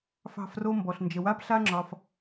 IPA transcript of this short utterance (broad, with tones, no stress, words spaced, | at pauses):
fɑ̤˧fro˧ mbɔ˨ɬnd͡ʒə˨wa˧p ɬa˦ŋ͡ǁɒ˧f